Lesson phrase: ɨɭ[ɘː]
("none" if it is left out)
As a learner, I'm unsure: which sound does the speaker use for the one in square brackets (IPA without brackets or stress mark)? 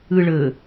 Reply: ɘː